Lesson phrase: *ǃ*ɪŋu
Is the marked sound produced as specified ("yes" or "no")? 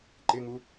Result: yes